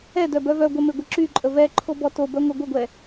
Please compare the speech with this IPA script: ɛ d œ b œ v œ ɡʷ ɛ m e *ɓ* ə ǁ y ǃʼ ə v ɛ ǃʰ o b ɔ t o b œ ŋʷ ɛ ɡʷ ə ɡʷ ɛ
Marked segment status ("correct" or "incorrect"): incorrect